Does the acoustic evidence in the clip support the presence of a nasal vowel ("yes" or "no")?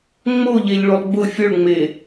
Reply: no